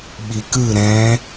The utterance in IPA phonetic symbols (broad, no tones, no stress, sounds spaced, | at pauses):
ɓ i k ɯ ɾ ɛ̃